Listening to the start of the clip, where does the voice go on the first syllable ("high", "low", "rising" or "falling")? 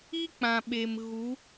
high